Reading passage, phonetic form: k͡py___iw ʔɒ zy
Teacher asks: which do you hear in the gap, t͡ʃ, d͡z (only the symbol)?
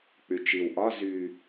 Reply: t͡ʃ